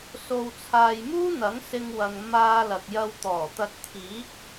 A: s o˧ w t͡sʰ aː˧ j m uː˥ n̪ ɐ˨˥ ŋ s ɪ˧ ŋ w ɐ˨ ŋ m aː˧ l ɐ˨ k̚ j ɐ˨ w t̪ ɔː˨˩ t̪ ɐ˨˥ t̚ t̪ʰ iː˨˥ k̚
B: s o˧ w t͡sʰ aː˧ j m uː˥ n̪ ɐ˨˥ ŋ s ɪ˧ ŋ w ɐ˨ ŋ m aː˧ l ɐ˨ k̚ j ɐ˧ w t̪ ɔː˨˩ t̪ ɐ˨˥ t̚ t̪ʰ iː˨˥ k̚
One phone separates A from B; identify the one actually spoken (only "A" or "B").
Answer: B